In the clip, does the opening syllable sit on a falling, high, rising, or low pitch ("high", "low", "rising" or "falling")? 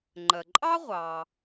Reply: low